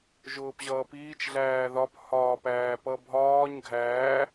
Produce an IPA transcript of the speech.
ʒ ʊː p ʑ ʌː p iː t͡ʃ ɮ æː ð ɒ p h ɒː p æː p ʌ bʱ ɒː ɲ ɡʱ æː

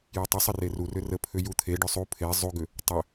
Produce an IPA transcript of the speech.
j ʏ tˤ ə sˤ ə r e r u r ʏ r ə pʰ ʏ j u t̪ʰ e ɖ ʏ sˤ u pʰ e zˤ u ɡ ʏ | tˤ ʏ

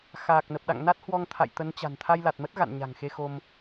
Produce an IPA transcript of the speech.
x aː˨˩ k̚ n ə˨˩ p̚ ɗ a̰˧˨ ŋ n a˦˥ t̚ h w ɔ˧ ŋ t̪ʰ a̰˧˨ j t̪ ə˨˦ n t͡ɕ a̤˨˩ n t̪ʰ a˧ j l a˨˩ t̚ m ə˦˥ t̚ ɣ a̰˧˨ n ɲ a̤˨˩ ŋ x e˧ x o˧ m

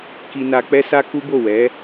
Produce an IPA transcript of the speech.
k i˧ n a˧ k͡p ɛ˦ s a˦ k u˦ b o˦˨ w ɛ˨˦

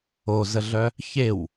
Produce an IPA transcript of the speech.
o z ə ɮ œ | ç e w

